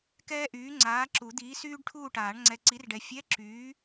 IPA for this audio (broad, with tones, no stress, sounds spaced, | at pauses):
k ɛː˥ ʔ yː˨˥ ŋ͡ǀ aː˨˥ ǁ u˨˩˦ d̪ iː˨˥ s yː˥ ɖ ʈʰ uː˥˨ ʈ aː˨˩˦ ɳ ŋ͡ǀ ɛ˨ ǀ i˨˥ r ɖ ɛ˨ fʲ ɛ˧˥˧ ǁ yː˨˥